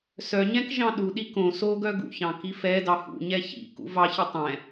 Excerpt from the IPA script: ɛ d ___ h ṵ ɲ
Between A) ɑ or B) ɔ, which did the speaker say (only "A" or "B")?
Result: A